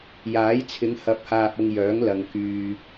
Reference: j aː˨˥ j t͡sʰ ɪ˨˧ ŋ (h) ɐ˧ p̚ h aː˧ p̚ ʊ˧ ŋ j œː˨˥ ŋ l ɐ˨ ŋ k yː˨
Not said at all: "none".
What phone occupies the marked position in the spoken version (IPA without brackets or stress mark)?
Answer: h